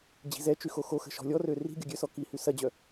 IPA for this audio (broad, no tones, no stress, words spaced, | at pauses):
d͡ʑi̤zɛt͡ʃy xoxoxə̤ ʃɔ̤lʲɔrø ri̤ ɡʲɔɡʲøsɔ kihy sɐd͡ʑœ